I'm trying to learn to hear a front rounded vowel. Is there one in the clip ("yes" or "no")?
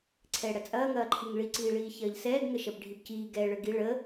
no